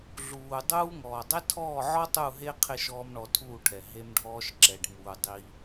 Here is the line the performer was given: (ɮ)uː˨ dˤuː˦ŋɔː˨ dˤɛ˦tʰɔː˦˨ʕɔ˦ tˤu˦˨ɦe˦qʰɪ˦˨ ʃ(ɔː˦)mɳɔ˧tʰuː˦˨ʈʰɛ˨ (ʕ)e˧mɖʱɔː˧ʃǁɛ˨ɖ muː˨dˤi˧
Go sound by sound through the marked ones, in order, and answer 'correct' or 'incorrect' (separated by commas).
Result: correct, correct, incorrect